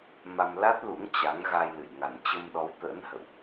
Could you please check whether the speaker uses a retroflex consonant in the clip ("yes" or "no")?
no